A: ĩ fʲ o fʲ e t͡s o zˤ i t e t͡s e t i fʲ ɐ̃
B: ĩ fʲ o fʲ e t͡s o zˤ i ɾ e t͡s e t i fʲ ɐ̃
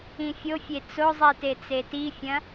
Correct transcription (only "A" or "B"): A